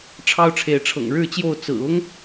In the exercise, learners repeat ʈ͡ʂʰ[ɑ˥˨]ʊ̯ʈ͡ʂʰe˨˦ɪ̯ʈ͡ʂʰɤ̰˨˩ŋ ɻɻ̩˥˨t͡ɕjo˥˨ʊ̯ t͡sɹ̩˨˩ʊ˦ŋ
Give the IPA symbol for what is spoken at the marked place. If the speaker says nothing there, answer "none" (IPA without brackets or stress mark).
ɑ˥˨